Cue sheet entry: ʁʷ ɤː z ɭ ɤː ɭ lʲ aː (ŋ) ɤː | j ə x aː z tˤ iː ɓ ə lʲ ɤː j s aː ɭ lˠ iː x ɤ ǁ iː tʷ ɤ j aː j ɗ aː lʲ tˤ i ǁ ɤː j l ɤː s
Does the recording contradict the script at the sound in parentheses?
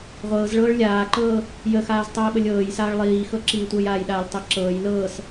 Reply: yes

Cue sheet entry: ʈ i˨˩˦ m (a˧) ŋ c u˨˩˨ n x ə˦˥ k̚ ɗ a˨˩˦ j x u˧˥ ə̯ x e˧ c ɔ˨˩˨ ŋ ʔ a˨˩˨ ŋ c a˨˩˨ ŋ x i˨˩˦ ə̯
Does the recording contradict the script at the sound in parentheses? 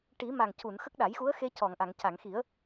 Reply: yes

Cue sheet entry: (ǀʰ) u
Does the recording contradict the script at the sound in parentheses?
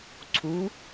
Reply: no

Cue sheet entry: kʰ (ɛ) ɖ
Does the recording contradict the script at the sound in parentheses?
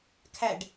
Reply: yes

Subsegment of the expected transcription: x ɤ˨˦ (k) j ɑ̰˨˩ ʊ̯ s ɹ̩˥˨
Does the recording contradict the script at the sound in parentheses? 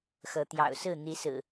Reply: yes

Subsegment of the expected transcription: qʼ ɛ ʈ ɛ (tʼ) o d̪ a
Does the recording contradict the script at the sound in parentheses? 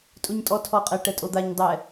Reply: no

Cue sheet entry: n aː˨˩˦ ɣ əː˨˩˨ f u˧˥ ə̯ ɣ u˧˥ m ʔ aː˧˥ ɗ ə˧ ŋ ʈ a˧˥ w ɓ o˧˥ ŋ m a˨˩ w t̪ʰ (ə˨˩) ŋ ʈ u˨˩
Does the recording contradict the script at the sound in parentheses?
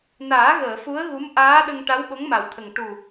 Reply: no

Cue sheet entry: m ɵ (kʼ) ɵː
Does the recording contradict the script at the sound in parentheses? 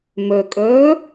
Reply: no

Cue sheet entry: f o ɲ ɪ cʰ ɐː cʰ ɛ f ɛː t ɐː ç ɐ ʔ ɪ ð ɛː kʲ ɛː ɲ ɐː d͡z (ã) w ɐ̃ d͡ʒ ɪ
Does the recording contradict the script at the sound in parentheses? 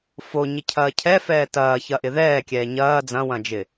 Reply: yes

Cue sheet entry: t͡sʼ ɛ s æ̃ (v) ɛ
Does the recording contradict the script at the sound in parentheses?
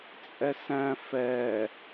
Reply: yes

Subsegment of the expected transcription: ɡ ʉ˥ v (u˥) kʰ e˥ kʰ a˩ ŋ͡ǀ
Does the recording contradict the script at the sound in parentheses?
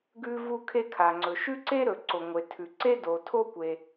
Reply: no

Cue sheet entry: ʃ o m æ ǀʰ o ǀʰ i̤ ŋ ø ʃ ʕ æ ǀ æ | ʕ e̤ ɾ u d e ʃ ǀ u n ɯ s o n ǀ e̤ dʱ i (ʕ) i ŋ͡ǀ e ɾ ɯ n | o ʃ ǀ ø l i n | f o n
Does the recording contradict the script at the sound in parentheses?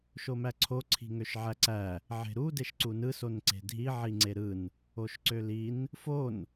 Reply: no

